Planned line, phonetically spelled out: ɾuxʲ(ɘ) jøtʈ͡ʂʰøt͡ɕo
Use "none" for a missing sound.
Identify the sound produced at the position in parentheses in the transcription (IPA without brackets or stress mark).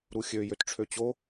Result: ø